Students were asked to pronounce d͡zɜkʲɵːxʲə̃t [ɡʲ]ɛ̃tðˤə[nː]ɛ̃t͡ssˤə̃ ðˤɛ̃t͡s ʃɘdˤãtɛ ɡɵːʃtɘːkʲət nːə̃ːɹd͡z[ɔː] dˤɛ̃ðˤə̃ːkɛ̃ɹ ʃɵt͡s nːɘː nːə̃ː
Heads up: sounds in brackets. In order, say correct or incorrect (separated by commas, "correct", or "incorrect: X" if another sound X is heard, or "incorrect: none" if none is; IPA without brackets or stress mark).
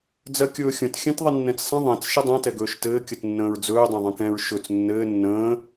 incorrect: xʲ, correct, incorrect: ɵː